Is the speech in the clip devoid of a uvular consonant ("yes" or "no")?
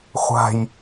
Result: no